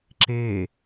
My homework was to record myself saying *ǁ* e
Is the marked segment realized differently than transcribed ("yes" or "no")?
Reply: no